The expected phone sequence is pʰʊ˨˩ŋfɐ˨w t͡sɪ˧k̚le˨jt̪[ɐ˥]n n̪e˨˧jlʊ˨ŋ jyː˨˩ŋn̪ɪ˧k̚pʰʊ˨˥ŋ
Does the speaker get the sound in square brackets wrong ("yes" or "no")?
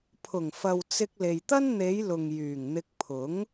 no